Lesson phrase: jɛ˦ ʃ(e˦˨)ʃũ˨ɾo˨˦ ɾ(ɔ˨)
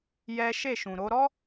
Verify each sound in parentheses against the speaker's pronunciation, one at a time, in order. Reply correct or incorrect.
correct, incorrect: ɔ˦

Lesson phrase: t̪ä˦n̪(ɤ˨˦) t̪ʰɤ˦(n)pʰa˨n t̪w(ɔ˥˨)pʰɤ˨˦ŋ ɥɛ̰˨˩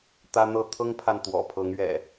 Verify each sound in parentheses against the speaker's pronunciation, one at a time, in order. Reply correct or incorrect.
incorrect: ɤ˥˨, incorrect: ŋ, incorrect: ɔ̰˨˩

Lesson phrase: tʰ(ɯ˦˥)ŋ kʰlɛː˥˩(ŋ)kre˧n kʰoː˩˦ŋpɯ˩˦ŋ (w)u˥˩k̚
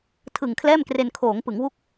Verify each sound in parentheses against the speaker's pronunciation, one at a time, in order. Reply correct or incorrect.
incorrect: ɯ˨˩, incorrect: m, correct

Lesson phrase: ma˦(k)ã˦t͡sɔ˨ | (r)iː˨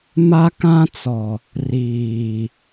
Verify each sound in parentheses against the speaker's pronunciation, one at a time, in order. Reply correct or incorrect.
correct, correct

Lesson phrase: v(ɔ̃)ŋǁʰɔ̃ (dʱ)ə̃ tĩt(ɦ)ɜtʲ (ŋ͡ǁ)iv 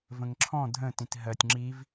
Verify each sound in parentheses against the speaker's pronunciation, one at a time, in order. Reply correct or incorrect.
incorrect: ə̃, correct, correct, correct

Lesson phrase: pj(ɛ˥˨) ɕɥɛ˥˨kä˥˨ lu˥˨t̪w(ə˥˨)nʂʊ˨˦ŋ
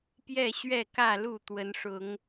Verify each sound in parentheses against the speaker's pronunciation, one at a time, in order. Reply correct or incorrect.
correct, incorrect: ə˨˦

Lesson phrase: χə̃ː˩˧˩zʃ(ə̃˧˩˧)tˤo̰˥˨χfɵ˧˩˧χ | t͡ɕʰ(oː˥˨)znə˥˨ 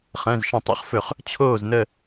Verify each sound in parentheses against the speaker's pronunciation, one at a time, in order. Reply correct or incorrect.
correct, correct

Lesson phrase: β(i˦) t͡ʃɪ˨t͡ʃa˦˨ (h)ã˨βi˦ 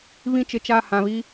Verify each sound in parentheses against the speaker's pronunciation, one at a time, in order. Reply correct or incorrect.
incorrect: ĩ˦, correct

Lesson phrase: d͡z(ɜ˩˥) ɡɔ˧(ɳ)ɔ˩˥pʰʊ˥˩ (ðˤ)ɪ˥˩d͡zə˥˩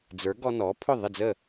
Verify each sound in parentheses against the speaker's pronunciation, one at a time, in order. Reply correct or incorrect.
incorrect: ə˞˩˥, incorrect: n, correct

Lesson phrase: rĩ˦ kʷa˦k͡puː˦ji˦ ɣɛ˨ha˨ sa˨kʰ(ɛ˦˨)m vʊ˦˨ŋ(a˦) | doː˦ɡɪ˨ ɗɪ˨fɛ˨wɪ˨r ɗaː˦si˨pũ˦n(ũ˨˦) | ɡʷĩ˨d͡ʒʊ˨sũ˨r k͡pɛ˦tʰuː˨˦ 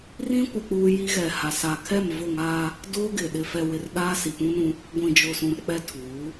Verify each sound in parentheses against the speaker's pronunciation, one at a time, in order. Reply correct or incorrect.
correct, correct, incorrect: ũ˦

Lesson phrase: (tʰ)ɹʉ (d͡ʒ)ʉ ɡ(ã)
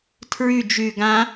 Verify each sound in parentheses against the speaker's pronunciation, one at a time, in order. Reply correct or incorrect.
correct, correct, correct

